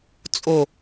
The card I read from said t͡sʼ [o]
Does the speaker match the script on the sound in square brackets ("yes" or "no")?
yes